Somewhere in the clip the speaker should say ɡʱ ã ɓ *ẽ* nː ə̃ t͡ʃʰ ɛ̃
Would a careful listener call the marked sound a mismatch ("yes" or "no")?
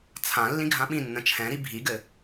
yes